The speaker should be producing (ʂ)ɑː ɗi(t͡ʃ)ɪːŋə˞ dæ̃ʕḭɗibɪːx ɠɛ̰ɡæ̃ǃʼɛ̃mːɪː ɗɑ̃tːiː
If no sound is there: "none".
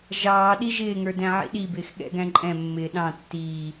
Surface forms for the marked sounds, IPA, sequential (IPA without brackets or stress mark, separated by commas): ʒ, ʒ